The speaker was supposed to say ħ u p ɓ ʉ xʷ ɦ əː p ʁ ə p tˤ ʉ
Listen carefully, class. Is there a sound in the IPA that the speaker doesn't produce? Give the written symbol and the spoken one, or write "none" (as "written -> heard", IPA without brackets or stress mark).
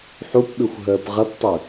none